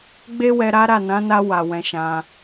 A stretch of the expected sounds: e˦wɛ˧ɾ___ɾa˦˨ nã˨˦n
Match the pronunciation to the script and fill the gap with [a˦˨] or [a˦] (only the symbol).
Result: a˦